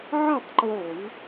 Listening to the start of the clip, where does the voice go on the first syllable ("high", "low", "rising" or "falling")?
falling